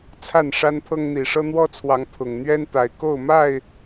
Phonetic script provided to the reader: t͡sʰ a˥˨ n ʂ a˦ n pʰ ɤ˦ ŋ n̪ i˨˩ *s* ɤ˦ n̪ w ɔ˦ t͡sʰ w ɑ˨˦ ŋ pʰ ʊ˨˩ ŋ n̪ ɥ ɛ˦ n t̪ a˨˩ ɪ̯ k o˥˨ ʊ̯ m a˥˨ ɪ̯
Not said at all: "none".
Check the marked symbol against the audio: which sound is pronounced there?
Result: ʂ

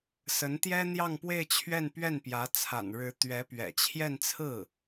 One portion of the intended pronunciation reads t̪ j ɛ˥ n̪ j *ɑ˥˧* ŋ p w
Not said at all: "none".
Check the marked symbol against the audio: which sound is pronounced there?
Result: ɑ˥˧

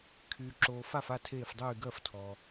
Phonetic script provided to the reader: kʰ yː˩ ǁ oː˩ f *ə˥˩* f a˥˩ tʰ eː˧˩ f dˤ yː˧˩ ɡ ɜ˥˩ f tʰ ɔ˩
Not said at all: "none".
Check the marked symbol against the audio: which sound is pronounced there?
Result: a˥˩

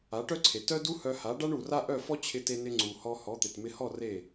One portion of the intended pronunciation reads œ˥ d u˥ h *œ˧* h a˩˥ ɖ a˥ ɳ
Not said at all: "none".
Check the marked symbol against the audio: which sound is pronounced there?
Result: œ˧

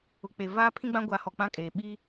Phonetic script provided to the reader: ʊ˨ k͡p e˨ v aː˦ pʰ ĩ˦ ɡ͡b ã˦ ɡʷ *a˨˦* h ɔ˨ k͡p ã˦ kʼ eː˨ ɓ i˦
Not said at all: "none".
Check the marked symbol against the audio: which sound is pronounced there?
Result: a˨˦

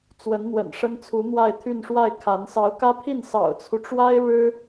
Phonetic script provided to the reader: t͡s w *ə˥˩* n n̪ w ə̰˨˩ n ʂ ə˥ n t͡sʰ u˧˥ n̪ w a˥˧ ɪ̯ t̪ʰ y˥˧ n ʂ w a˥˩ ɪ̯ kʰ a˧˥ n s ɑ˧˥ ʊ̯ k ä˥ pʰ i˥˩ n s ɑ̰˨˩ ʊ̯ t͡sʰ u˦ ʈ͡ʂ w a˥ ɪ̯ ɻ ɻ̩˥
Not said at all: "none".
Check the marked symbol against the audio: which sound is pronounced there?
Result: ə˧˥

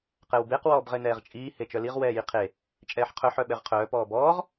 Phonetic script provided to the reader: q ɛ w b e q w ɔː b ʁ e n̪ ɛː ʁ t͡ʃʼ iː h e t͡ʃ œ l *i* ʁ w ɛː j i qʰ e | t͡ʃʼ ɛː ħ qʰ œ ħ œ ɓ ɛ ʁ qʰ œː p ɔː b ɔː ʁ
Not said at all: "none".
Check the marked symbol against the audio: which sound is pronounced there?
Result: i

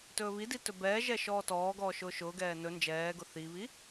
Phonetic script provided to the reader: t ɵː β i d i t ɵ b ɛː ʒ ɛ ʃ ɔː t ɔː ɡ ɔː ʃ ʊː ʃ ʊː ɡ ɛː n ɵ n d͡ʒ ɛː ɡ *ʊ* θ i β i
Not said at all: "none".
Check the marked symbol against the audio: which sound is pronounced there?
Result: ʊ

